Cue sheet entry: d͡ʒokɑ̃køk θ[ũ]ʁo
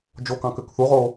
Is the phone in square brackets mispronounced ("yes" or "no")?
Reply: yes